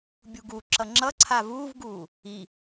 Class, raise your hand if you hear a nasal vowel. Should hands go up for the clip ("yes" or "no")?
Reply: no